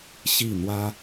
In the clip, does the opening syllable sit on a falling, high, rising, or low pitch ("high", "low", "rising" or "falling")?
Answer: falling